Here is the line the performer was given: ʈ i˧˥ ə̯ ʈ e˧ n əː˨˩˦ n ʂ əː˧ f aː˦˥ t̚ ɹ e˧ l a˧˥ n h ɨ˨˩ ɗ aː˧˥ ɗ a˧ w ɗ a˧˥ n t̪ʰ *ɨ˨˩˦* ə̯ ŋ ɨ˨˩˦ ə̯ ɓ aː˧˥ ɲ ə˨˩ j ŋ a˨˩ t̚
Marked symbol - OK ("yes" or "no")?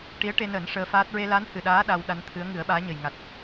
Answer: no